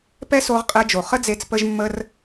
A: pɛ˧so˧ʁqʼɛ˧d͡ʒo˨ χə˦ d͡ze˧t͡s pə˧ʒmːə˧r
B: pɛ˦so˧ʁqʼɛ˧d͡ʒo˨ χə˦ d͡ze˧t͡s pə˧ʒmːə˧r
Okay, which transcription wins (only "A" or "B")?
B